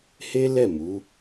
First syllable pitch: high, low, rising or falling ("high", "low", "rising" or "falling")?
high